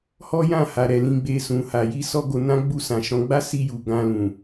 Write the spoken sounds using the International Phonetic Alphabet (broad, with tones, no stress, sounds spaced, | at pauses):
h ɔ˦ j ã˦˨ h a˨ ɾ ɛ˨ l ĩ˧ ɡ͡b e˧ s ũ˨ h a˨ j i˧ s ɔ˦ ɡ o˧ n ã˦ ɡ͡b u˦˨ s ã˨ ʃ ɔ̃˨˦ ɡ͡b a˦ s i˧ j u˨ ɡ ã˧ l ũ˨